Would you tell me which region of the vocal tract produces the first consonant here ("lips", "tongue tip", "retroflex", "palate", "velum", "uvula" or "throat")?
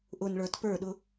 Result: throat